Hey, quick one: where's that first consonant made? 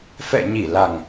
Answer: lips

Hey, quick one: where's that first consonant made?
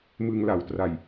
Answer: lips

